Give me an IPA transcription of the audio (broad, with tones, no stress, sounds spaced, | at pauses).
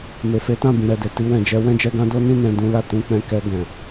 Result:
m e˨ f e˨˦ t ã˦˨ b ĩ˨ ɾ ɛ˨ d e˧ t i˧ w ɛ̃˨ d͡ʒ ɛ˧ w ɛ̃˦ d͡ʒ ɛ˧ ɡ ã˦ d o˦ n ĩ˦ n ɛ̃˧ d ũ˦ l a˦˨ t ũ˧ k͡p ɛ̃˧ k ɛ˧ ɡ ɛ̃˨